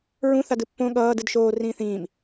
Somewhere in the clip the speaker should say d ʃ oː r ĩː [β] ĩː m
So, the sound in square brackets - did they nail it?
no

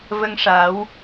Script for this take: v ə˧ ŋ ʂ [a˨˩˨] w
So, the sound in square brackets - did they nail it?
no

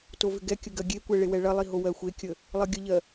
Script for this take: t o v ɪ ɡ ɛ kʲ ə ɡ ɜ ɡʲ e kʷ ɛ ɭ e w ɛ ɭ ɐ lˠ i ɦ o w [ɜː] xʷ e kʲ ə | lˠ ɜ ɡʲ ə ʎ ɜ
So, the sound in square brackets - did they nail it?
no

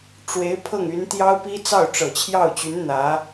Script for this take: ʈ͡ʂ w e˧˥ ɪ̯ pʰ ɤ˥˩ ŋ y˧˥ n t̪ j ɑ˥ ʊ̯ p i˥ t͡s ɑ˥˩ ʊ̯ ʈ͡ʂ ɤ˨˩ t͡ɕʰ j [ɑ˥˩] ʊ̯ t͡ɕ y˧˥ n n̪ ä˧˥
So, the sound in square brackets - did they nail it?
yes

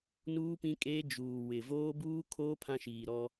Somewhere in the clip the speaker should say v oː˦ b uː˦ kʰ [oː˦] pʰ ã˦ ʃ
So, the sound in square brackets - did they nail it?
yes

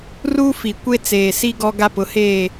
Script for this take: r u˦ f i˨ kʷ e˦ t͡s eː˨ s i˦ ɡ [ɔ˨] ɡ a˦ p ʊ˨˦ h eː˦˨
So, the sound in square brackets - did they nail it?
no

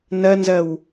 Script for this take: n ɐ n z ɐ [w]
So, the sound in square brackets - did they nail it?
yes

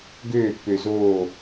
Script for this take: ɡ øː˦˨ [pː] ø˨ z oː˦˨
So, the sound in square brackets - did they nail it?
yes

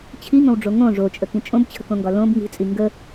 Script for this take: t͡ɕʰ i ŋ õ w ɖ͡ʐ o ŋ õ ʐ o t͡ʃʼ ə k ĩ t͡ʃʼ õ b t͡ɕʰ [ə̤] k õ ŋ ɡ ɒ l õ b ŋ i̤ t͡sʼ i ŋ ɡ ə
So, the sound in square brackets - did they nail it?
yes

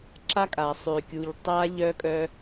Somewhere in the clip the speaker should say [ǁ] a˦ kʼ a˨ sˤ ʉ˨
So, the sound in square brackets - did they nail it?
yes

